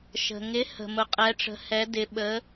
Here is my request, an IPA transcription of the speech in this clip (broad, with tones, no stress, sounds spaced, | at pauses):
ʃ ə̤˨ ŋ ɪ˧˥ h ə̤˨ m ʊ˧˥ qʼ ɛ˧˥ ʈ͡ʂ ə̤˧˥ h ɛ˧˥ d ɪ˧˥ ɓ ə˧˥